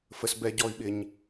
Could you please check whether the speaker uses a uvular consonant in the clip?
no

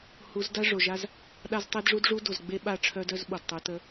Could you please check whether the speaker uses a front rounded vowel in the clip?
yes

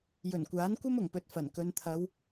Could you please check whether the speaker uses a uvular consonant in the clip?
no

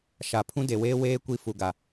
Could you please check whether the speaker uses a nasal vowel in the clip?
yes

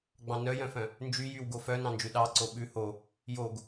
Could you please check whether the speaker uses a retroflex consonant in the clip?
no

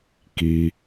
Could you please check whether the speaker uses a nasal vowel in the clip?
no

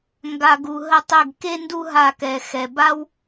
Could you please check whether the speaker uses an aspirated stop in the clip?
no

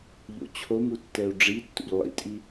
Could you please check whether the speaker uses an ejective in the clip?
yes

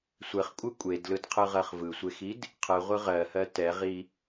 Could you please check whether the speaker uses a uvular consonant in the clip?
yes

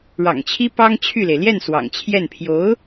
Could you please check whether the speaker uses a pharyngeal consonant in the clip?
no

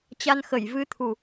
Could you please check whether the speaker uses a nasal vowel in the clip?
no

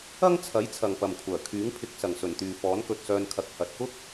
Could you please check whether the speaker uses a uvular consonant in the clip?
no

